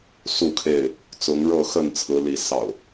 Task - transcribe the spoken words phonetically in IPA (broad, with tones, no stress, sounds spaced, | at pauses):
s u˥˨ kʰ e˥˨ ɪ̯ | t͡s ʊ˨˦ ŋ ɻ ɤ˥˨ x ə˥˨ n t͡sʰ ɹ̩˨˦ l i˨˦ s ɑ̰˨˩ ʊ̯